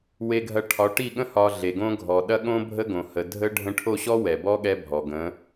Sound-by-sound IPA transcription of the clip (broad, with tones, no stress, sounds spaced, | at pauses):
w e˧ ɡʱ ɐ˧ ʈʰ ɒ˨˦ ʈ i˦˨ ɠ ə̃˦ h ɒ˧ ɮ e˨ ɡ õ˦ ɡʱ ɔ˨ ɗ ɐ˦ ɠ õ˦ bʱ ə˦ ɡ õ˨ h ə˨ dʱ ə˦ ɖʱ ə̃˧ ʈʰ o˦˨ ɕ ɔ˦ w ɛ˨ b ɔ˦ ɠ ɛ˦ bʱ ɔ˨ ɡ ə̃˨˦